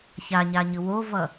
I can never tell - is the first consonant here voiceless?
yes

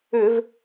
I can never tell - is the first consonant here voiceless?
no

